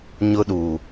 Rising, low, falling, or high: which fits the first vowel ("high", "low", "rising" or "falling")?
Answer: high